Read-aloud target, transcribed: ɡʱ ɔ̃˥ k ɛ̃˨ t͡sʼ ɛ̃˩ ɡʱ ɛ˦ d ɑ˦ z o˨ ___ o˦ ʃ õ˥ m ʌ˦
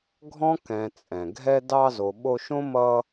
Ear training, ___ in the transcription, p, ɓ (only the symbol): ɓ